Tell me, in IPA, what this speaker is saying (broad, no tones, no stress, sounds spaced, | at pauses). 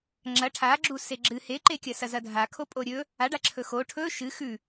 ŋ͡ǁ ɐ ʈʰ a ɡ͡ǁ u s e ɡ͡ǁ ɨ h e ǃ e kʲ ɐ s ɐ z ɐ dʱ a kʰ o pʼ o ɾʲ ɵ | a ɖ a ǁʰ ɵ x o ʈʰ ɵ ʃ ɨ x ʉ